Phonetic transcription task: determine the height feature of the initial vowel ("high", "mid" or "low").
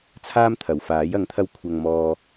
low